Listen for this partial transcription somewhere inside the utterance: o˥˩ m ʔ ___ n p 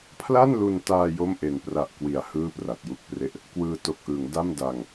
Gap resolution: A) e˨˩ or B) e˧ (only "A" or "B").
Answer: A